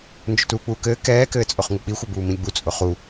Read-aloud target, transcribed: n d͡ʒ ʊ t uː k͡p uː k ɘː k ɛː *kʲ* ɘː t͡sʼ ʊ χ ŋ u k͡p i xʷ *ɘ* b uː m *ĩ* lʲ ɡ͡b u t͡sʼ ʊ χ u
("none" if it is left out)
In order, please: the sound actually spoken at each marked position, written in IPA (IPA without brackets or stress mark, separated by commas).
k, ɘ, ĩ